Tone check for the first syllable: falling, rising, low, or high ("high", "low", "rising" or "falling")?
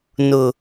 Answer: low